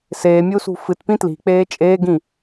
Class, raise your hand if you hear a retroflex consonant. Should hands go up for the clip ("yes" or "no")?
no